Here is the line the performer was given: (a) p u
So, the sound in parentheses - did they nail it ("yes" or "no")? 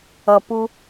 no